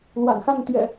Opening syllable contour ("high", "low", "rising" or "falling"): low